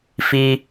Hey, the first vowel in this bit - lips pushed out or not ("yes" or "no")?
no